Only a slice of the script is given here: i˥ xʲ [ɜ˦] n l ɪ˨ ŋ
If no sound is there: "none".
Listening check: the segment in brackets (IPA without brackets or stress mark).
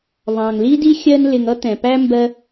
ɜ˦